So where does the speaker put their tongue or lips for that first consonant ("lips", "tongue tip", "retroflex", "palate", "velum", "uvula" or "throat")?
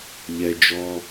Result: palate